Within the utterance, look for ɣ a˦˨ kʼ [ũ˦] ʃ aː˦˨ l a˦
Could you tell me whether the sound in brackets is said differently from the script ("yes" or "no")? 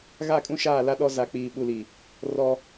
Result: no